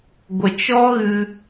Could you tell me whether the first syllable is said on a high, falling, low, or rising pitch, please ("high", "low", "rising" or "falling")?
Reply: low